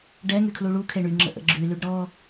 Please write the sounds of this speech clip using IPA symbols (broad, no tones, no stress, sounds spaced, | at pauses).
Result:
ɖ ɛ ŋ y kʰ l u ɭ u kʰ e ɳ y ŋ͡ǁ ə̰ ʔ ə̰ ɡ͡ǁ y l y ɖ ɾ ɔ